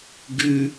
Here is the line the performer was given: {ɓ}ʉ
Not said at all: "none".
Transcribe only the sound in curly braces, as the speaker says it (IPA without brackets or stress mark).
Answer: ɡ